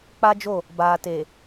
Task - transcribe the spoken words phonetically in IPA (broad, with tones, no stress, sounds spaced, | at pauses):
k͡p a˦ d͡ʒ o˦˨ | b aː˨ t e˨